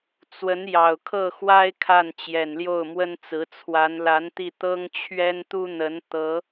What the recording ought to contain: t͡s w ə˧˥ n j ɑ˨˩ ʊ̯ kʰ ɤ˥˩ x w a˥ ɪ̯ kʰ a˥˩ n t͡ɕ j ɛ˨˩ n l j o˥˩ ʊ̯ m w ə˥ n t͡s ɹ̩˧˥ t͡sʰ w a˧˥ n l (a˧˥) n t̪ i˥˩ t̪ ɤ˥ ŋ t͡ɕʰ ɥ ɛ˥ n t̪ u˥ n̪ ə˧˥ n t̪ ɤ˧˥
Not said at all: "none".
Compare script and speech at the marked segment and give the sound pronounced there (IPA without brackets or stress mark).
a˧˥